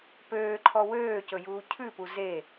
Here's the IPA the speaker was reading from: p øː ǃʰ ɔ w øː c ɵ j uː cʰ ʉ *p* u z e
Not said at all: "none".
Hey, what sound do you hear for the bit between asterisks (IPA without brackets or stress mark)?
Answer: p